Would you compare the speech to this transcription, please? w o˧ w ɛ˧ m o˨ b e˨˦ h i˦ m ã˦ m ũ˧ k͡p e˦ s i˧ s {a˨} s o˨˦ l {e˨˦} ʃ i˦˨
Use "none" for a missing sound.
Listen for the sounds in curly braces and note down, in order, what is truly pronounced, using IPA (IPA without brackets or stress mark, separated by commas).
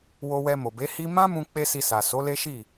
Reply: a˨, e˦